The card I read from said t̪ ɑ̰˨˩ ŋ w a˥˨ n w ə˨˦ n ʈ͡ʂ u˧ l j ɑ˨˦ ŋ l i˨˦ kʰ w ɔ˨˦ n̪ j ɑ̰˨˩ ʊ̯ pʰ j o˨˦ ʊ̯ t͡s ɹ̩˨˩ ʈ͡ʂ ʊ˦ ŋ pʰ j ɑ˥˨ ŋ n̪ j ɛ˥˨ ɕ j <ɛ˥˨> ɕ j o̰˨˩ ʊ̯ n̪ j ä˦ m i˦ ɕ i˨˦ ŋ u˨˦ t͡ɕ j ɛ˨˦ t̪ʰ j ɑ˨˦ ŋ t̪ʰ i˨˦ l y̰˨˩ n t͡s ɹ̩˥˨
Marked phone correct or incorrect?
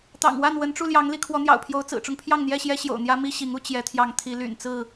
incorrect